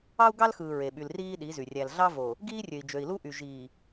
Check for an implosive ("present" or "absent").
present